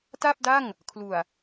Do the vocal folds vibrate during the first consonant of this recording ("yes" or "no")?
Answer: no